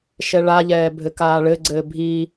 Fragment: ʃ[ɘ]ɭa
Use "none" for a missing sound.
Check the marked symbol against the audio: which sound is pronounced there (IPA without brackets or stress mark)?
ɛ